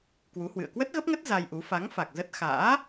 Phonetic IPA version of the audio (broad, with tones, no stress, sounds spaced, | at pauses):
k w u˨˦ h w ɨ̰˧˨ ə̯ k w ə˦˥ t̚ ɣ ə˦˥ p̚ ŋ ə˦˥ t̚ z a˧ j ʔ u˨˦ f a˨˦ ŋ f a˨˩ k̚ z ə˦˥ t̚ x a̰ː˧˥